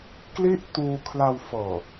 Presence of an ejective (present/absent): absent